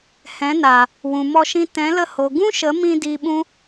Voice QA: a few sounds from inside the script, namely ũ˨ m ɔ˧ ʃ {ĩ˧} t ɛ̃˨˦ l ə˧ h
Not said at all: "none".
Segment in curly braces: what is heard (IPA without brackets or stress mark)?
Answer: ĩ˧